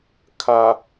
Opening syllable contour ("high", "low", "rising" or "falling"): low